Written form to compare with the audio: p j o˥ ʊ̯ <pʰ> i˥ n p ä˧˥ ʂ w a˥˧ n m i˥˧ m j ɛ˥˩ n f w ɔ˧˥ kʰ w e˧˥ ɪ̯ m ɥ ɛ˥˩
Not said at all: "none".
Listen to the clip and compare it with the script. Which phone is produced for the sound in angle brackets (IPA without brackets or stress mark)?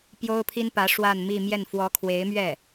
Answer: pʰ